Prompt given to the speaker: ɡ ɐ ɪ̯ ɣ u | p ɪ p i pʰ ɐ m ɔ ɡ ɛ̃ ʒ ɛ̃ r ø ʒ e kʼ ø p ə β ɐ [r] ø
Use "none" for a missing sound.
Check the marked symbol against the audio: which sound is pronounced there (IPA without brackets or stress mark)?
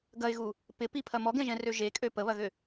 ɣ